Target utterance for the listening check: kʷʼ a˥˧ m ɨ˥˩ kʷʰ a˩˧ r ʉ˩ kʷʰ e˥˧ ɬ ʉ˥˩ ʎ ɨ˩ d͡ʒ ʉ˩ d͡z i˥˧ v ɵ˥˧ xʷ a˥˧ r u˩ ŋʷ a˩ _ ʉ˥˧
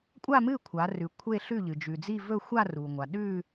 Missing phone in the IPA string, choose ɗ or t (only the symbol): ɗ